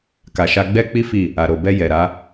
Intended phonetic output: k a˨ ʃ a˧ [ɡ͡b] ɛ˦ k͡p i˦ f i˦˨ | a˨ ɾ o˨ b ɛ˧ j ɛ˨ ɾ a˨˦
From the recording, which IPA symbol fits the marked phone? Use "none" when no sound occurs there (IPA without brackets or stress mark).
ɡ͡b